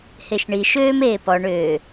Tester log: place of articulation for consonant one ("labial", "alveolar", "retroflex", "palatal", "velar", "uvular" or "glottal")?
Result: glottal